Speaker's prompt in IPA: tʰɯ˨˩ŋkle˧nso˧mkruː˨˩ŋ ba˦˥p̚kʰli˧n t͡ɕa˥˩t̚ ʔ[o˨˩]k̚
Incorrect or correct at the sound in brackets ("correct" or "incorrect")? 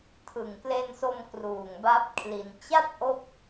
incorrect